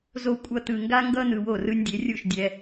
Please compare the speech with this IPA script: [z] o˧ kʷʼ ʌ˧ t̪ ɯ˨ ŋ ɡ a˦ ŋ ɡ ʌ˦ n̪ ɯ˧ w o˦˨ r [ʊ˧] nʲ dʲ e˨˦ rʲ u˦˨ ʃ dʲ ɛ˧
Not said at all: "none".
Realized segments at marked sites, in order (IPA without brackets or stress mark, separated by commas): z, ɯ˧